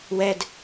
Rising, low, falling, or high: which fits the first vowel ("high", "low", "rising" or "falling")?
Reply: high